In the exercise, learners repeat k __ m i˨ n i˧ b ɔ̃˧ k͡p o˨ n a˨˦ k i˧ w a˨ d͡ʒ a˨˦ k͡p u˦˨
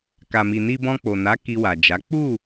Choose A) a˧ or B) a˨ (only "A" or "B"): B